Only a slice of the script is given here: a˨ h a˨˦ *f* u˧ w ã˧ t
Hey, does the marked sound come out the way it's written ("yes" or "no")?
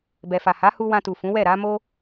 no